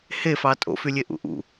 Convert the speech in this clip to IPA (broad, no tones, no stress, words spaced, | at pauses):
hefɑ tʼo̰fylʲe ʔṵʔṵ